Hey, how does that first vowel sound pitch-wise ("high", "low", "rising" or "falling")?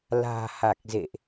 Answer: low